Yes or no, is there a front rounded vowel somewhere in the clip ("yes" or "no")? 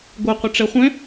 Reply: no